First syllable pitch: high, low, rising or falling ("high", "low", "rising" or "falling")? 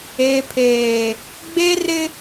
low